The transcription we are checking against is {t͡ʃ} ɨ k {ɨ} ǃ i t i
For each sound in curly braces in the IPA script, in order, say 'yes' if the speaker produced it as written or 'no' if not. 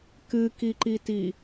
no, no

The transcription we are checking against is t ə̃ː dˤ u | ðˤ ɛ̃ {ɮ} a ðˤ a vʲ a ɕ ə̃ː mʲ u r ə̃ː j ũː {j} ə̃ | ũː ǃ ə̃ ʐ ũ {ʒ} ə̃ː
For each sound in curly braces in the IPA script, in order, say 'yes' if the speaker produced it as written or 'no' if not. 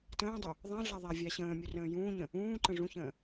yes, no, no

